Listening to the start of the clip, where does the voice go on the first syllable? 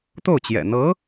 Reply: falling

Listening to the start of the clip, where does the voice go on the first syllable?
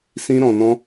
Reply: high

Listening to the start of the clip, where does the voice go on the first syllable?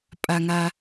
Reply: high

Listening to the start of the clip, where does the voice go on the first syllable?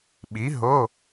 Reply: rising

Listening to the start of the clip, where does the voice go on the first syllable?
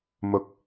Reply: low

